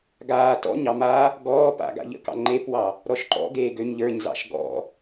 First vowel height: low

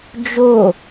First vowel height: mid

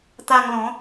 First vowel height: low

